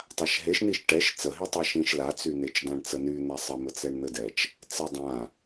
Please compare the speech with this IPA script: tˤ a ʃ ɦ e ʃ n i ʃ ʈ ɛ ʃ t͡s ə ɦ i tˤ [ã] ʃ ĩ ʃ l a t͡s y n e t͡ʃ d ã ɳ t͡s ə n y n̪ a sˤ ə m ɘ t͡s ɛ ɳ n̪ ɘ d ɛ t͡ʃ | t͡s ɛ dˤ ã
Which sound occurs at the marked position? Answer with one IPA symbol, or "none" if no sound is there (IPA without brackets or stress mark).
a